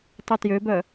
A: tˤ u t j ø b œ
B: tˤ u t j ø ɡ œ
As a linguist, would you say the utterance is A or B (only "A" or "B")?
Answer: A